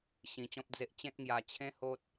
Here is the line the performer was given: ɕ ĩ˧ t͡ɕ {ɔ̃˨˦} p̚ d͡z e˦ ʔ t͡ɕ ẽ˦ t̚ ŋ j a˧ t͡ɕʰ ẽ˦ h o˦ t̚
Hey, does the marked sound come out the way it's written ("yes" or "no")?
no